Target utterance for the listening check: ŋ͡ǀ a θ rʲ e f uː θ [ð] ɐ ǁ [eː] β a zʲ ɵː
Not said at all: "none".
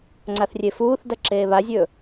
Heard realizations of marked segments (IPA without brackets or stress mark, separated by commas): d, eː